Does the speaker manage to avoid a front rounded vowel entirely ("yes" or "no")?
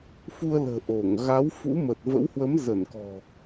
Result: yes